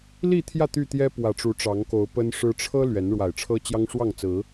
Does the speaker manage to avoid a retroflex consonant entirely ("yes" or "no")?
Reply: no